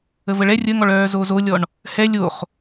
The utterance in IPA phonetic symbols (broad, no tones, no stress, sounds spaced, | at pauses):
ə v ə ɭ ɛ rʲ ə ŋ ɔ ɭ œː z o z o lʲ ɔ ɳ | h ɛ lʲ o χ